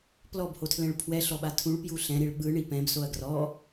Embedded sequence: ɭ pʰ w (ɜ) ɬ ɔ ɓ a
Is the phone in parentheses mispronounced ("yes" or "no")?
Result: yes